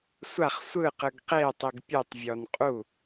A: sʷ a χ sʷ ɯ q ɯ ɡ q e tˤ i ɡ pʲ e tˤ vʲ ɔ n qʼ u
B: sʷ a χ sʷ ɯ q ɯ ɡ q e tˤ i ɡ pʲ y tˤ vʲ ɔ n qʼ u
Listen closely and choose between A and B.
A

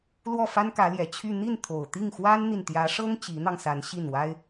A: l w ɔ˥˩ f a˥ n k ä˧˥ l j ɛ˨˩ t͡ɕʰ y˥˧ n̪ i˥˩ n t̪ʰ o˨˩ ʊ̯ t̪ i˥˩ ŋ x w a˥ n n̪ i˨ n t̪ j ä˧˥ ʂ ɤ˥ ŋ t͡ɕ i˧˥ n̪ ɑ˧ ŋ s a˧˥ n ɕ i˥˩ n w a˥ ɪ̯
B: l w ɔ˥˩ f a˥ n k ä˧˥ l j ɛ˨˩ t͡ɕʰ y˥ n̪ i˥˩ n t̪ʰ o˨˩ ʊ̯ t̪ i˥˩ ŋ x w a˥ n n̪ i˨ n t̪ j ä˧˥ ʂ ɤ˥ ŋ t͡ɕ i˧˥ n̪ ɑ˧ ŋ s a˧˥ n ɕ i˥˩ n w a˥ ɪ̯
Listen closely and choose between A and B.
A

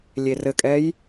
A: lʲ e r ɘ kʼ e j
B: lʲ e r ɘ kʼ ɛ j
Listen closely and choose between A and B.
B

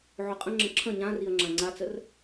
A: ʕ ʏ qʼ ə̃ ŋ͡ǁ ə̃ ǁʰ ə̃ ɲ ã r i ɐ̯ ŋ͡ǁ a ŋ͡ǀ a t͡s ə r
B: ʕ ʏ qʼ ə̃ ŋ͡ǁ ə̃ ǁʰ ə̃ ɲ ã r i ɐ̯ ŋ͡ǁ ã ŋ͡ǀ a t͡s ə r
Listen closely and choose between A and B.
B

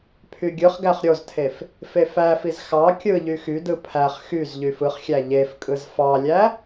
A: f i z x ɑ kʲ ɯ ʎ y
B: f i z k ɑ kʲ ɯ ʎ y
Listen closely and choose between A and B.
A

